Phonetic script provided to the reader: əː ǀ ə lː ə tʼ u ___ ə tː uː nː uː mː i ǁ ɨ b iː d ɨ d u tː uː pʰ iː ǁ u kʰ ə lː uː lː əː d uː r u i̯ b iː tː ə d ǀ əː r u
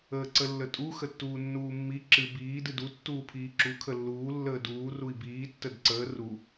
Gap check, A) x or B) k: A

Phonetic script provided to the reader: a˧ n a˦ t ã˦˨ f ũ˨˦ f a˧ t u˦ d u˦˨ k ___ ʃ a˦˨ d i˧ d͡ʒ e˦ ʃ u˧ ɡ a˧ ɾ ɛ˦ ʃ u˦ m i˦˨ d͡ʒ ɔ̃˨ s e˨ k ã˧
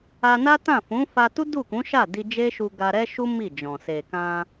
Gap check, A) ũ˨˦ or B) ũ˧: A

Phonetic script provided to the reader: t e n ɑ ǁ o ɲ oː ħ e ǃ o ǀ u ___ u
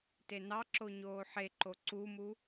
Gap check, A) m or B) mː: A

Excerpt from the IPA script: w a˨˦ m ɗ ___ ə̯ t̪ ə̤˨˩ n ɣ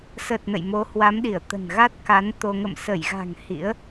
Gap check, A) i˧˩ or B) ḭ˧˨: A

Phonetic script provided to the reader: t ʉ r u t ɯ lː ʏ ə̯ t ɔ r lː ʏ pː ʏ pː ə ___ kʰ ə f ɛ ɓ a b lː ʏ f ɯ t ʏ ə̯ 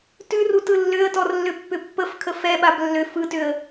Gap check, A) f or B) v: A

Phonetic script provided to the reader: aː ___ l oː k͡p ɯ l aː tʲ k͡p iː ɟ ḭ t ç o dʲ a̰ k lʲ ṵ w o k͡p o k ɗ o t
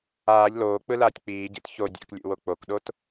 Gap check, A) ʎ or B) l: A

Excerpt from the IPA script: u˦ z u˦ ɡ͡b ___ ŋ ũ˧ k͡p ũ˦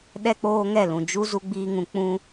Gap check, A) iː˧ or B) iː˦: B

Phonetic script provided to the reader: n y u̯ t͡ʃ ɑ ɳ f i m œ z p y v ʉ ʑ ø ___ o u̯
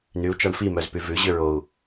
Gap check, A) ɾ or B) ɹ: B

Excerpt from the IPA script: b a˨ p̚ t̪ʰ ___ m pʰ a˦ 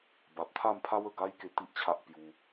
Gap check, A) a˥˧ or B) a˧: A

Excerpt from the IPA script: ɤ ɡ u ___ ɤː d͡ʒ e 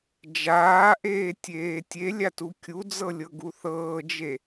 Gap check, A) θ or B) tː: A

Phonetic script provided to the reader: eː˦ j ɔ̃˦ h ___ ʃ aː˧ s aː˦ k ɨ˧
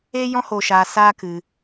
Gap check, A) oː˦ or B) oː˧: B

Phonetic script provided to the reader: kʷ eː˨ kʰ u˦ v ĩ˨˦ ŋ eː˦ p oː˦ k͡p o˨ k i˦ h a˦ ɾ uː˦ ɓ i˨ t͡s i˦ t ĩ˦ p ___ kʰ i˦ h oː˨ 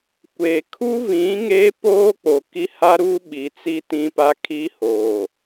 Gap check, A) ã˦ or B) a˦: B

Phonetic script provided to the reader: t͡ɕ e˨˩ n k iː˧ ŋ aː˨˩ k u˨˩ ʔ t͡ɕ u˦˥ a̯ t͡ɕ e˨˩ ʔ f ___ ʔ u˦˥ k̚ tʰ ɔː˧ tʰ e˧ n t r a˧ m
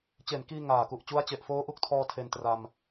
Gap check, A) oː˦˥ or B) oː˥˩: A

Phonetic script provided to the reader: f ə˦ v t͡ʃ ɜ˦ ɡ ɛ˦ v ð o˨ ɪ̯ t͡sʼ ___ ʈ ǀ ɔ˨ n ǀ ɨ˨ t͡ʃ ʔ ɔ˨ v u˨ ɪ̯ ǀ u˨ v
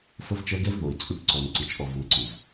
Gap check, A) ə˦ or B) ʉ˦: B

